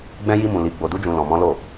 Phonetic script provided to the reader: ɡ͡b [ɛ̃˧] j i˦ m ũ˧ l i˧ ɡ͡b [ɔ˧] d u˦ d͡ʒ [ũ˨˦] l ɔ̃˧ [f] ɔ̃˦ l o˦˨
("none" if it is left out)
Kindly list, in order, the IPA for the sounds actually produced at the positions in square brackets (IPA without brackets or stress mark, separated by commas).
ɛ̃˦, o˧, ũ˧, m